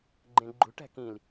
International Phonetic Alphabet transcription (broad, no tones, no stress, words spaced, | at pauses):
ɡ͡ǃẽɡ͡ǃṳʈæ̤ kĩl